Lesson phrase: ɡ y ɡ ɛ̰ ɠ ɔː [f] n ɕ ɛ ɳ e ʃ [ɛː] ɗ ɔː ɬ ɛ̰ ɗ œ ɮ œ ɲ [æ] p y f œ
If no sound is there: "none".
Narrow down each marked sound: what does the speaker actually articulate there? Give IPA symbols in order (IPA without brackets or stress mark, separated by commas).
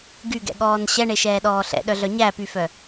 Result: none, ɛː, æ